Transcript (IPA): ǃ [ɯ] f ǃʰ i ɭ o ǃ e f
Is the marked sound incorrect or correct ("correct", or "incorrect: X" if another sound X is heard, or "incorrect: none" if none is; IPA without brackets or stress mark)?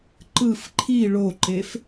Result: correct